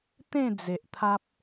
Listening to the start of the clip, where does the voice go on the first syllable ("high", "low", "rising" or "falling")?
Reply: falling